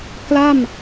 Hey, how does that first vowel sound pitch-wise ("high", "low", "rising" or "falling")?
falling